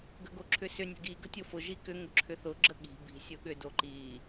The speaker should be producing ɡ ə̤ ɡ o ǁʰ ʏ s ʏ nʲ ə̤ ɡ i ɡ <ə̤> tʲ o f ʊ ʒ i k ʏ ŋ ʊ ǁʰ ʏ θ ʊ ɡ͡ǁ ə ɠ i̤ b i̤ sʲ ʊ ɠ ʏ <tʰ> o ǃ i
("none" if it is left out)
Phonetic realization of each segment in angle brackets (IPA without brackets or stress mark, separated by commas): ə̤, d